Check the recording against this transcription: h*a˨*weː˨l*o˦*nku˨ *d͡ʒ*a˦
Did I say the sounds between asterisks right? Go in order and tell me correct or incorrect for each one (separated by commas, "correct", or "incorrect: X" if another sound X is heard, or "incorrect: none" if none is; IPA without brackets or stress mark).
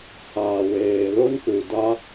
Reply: incorrect: aː˨, correct, incorrect: d